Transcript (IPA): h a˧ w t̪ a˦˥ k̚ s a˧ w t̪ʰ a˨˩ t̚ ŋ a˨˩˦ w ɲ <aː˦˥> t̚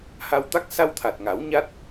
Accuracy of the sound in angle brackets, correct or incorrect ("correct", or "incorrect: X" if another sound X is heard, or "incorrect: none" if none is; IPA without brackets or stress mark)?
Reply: incorrect: a˦˥